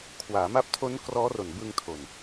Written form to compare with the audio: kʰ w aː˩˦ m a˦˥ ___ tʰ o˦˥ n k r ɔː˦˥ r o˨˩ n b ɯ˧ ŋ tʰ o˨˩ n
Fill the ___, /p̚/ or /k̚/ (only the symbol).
p̚